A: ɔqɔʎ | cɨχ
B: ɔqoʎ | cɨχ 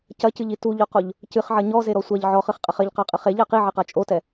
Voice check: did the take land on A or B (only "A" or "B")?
B